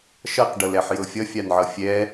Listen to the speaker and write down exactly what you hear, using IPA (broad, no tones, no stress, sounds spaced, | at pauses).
ʃ ʌ q ɖ ɤ l ɛ ħ j ɤ fʲ ʌ fʲ a n ʕ ʌ fʲ ɛ